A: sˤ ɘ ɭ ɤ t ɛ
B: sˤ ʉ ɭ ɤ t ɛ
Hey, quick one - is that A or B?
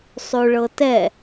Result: B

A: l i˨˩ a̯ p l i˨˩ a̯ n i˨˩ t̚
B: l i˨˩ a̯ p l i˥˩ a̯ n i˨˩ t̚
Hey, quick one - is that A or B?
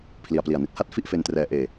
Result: A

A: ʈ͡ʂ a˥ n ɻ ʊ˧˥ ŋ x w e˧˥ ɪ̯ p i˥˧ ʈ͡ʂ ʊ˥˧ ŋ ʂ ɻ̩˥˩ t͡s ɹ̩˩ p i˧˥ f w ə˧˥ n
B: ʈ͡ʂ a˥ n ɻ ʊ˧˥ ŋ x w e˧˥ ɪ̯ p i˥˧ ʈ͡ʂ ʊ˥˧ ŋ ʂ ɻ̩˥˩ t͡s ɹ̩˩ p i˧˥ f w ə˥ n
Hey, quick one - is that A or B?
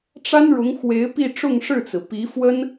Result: B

